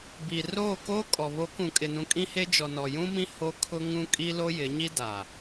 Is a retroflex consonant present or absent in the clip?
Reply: absent